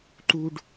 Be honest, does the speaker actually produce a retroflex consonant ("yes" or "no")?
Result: yes